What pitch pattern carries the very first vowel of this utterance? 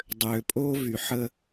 low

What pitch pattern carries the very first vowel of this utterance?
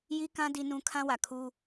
high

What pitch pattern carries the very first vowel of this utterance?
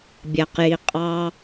low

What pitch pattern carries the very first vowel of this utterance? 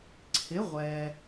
rising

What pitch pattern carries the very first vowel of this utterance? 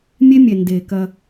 high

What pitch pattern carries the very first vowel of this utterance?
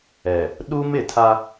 low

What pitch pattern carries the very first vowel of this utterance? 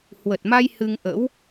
low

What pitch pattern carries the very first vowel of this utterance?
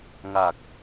low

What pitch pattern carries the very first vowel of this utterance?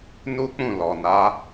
high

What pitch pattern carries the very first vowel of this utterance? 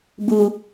low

